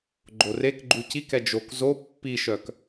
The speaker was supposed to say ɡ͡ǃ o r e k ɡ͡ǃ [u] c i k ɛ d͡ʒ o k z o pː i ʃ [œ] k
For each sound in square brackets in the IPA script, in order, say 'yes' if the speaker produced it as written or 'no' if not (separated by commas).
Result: yes, yes